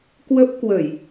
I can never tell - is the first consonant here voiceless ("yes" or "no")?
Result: yes